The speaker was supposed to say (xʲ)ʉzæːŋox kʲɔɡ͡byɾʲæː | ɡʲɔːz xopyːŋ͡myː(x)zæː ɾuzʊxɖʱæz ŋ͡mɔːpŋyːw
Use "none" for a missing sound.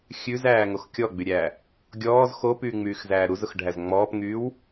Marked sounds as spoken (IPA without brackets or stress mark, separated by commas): xʲ, x